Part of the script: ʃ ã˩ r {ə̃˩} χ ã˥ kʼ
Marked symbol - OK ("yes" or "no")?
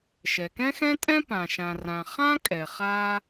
no